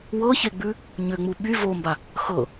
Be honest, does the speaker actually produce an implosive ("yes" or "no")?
yes